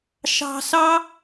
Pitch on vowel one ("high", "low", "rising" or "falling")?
high